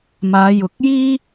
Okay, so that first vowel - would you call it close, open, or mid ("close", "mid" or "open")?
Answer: open